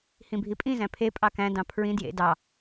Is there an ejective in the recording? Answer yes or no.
yes